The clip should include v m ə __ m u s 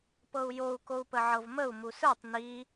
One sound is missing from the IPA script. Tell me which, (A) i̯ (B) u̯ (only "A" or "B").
B